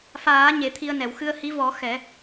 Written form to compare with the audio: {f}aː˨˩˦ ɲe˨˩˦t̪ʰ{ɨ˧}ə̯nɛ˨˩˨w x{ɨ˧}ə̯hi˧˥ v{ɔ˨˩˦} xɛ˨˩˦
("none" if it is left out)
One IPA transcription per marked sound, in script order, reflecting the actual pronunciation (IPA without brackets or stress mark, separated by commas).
f, i˧, ɨ˧, ɔ˨˩˦